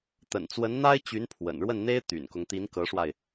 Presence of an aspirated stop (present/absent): present